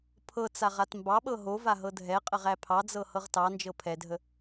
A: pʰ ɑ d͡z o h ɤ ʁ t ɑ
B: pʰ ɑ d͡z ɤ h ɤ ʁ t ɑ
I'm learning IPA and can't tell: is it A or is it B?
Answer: B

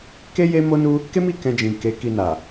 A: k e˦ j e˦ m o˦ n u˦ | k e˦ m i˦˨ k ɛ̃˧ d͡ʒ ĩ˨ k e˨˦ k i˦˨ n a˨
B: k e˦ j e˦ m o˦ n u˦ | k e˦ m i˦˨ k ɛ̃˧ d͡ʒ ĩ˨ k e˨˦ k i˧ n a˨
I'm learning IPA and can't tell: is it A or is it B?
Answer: B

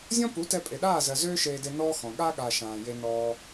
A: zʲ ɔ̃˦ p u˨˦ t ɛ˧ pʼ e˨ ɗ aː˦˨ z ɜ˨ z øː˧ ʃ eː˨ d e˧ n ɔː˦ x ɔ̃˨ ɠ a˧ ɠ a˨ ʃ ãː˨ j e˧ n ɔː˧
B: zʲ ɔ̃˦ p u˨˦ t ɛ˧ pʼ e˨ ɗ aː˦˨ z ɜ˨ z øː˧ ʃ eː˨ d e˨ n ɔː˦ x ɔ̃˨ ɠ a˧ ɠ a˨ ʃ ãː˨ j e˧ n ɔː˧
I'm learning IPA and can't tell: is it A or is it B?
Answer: B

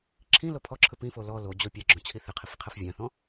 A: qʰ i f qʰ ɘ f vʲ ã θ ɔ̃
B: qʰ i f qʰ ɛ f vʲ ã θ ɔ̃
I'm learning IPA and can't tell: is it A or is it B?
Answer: B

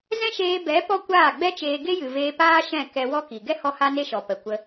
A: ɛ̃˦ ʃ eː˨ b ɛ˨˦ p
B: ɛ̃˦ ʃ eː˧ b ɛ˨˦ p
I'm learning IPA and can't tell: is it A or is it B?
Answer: B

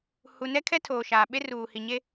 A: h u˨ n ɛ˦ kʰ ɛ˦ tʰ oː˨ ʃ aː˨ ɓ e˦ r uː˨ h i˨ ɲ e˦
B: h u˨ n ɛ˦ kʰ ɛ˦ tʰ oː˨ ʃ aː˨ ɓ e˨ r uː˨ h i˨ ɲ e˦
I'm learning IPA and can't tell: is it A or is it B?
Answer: A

